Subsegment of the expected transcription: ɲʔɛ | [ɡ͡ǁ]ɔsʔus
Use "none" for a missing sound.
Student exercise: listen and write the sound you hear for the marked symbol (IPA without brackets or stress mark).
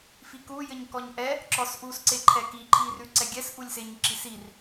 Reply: ǁ